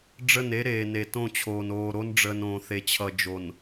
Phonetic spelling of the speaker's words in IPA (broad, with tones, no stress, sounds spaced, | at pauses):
ɖ͡ʐ ə˦˨ n e˦ ɾ eː˨ n e˨ t õ˦˨ t͡ɕʰ oː˨ n oː˨ ɾ o˦ n ɖ͡ʐ əː˨ n õː˨ θ e˨ t͡ɕʰ ʌ˨ d͡ʒ o˨ n